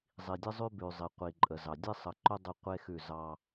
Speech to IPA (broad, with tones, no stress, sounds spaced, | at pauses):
zˤ i˨ dʲ ə˦ zˤ ʉ˦ b ʉ˨ zˤ i˨ qʷ i˨ ǃʼ ə˨ z ɑ˨ dʲ e˦ sˤ ə˨ ǃ ʊ˦ dˤ ə˦ qʷ e˦ x ʉ˦˨ z ɑ˦